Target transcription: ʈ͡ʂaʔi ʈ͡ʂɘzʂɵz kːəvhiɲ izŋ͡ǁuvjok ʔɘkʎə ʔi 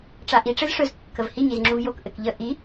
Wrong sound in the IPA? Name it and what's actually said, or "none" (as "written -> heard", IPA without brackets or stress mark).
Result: none